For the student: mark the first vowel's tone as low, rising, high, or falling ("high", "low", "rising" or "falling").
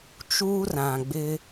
high